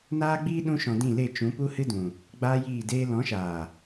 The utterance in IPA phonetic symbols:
n aː˦ ɡ͡b iː˦ ɗ ũ˦ ʃ ɔ̃˧ d ĩ˦˨ l e˦˨ t͡ʃ ũ˨˦ p u˦ h ɨ˦ d ũ˨ | ɡ͡b aː˦ j iː˦˨ d eː˦ l ɔ̃˨˦ ʃ aː˨

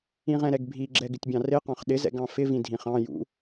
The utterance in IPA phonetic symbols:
ĩ ʁ ɛ̃ ɾ ɛ ɡ bʱ i ɡ͡ǁ ɛ ɡ ɪ tʲ bʲ ɑ̃ r ɪ q ɑ̃ χ ɗ ɪ z ɛ̰ ɡ ɑ̃ f ɪ v ĩ dʱ ĩ χ ɑ̃ j ṵ

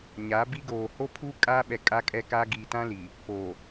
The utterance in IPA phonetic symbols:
ɲ aː˨˦ b i˦ ɡ oː˨ h o˦ pʰ u˦ kʼ aː˦ ɓ ɛ˨ kʼ a˦ kʼ ɛ˦ k a˦ ɡ iː˨ t ã˦ l i˨ | p oː˨

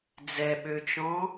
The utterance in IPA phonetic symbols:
d͡z ɛ ɓ ø t͡ʃ ɔ̃

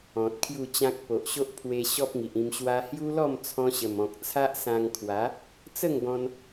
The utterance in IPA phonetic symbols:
ɔ̃˨ t̚ kʰ j u˥˧ t͡ɕ ã˦ k̚ p o˨ ʔ ɕ o˦ ʔ pʰ w e˧ ɕ ɔ˦ p̚ ŋ i˨ ʔ ĩ˧ m ɕ w a˧ h j u˦ l ɔ˥˧ m t͡sʰ ɔ̃˧ ɕ ə˨˩ m ɔ̃˨ k̚ t͡sʰ a˦ ʔ s ã˧ ŋ kʰ w a˨˦ | t͡s ə˥˧ ŋ ɡ ɔ̃˧ n

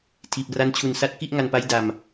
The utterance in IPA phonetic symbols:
tʰ iː˨˩ p̚ r a˦˥ n t͡ɕʰ u˨˩ n s a˦˥ t̚ k i˥˩ ʔ ŋ a˧ n p a˦˥ j d a˧ m

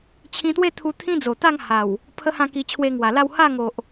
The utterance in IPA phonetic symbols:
t͡ɕʰ ĩ˧ t̪ w e˥˧ t̪ʰ u˧ t̪ʰ ĩ˦ d͡z o˨˩ t̪ a˥˧ ŋ h a˨˩ w | pʰ ə˦ h ã˥˧ k i˧ t͡ɕʰ w e˧ ŋ w a˨˩ l a˥˧ w h a˥˧ ŋ o˨ ʔ

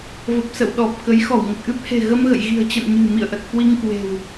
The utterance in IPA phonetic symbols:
v ə˨˩ p̚ s ə̰˧˨ w ɗ ɔ˨˩ p̚ k ə˨˦ j x ɔ˧˩ w ŋ ə˨˩ t̚ ʔ ɨ˦˥ p̚ h e̤˨˩ ɣ ə˧ m ɣ ə̰˧˨ j ɣ i̤˨˩ ə̯ t͡ɕ ə̰˧˨ n ɲ ɨ̤˨˩ m ḭ˧˨ ə̯ ʔ ə˨˩ t̚ k w i˧ ŋ k w e̤˨˩ w

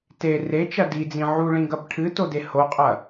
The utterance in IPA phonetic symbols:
t e r e t͡ʃ ɐ d i d͡z ĩ ʕ u ɭ ĩ ɡ ɐ b ʈʰ ɨ t o d e h o qʼ ɐ

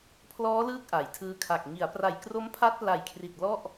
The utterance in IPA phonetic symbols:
pʰ l ɔː˦˥ l ɯː˦˥ k̚ ʔ a˩˦ j tʰ ɯː˧ kʰ a˨˩ k̚ ŋ i˩˦ a̯ p r a˨˩ j k r o˦˥ m pʰ a˦˥ t̚ p l a˨˩ j kʰ r i˨˩ t̚ l ɔ˥˩ ʔ

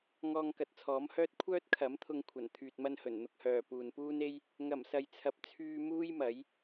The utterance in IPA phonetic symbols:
ŋ ɔː˧ ŋ k ɐ˨ t̚ t͡sʰ ɔː˨˥ m h œː˥ t̚ kʷʰ œː˥ t̚ kʰ ɐ˨˥ m t̪ʰ ʊ˧ ŋ kʷʰ ɐ˨˩ n t̪ʰ yː˨ t̚ m ɐ˧ n h ɵ˨˩ n n̪ ʊ˧ k̚ h œː˨ p uː˨ n p uː˥ n e˥ j | ŋ ɐ˨˩ m s ɐ˨ j t͡sʰ ɐ˨ p̚ t͡sʰ yː˧ m uː˥ j m ɐ˨˥ j

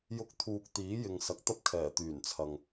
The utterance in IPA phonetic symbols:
j ʊ˧ k̚ t̪ʰ uː˨ k̚ t̪ iː˨˥ j ɪ˨ ŋ s ɐ˨ k̚ t̪ ɐ˥ p̚ kʰ ɛː˨˩ t̪ yː˨˩ n t͡sʰ ɐ˨ ŋ

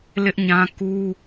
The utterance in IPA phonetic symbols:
l ɪ˦ ʔ ɲ ã˦ k u˦

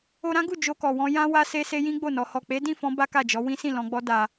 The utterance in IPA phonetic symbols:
o˧ ɾ ã˦ ɡ u˦˨ d͡ʒ o˧ k ɔ˨ w ɔ̃˧ j ã˧ w a˦ s e˧ s e˧ j ĩ˦ ɡ͡b o˦˨ n ɔ˧ h ɔ˨ k͡p e˨˦ d ĩ˦˨ f ɔ̃˧ b a˦ k a˦˨ d͡ʒ ɔ˨˦ w ĩ˦ s ĩ˦˨ l ɔ̃˧ ɡ͡b ɔ˦ d a˧

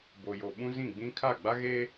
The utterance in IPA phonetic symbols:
b o˨ j o˨ ɓ ũ˦ z ĩ˦˨ ɡ͡b ĩ˦ kʰ a˦˨ ɡ͡b a˦ ɣ eː˦

